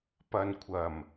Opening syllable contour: low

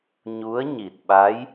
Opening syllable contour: rising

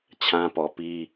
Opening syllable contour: high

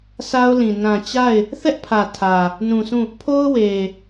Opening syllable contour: high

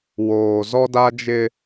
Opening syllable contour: low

